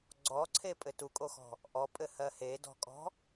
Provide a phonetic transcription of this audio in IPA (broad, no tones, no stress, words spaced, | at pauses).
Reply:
ɡ͡ǀɔǀʰepʼɘ tukʼoxɔ̤ | ʔɔpʼɘhɜ hedɔ̤kʼɔ̤